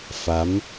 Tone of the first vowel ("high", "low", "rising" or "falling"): rising